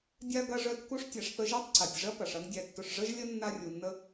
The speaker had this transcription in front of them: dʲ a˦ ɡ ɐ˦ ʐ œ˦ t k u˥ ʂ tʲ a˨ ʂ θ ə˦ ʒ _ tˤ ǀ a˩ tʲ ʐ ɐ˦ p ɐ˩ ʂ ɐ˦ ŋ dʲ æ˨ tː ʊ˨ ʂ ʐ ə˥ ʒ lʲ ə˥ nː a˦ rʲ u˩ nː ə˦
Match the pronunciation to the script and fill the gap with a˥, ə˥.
a˥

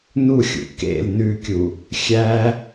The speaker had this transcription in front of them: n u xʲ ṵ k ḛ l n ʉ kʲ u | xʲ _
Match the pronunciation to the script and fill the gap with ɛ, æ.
æ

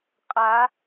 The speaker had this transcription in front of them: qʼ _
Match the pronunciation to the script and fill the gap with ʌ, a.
a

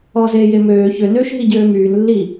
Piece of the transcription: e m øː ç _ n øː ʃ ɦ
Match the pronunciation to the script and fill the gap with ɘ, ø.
ø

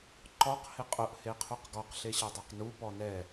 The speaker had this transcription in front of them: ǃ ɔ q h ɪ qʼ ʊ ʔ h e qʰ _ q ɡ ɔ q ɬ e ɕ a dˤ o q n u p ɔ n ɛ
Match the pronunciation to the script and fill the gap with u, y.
u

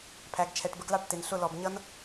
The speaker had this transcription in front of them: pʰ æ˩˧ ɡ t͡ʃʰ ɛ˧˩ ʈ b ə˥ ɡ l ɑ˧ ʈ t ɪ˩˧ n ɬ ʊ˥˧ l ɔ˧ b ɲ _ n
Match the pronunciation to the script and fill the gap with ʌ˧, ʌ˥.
ʌ˥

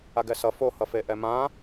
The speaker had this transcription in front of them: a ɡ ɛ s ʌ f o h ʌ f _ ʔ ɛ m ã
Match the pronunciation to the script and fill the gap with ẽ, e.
e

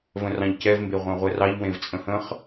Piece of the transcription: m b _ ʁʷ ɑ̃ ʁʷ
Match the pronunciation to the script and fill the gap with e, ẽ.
e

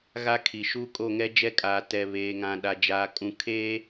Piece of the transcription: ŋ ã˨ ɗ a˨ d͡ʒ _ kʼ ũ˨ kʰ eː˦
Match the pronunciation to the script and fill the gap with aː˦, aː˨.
aː˨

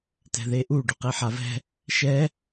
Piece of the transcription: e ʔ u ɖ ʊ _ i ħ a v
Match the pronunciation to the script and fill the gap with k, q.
q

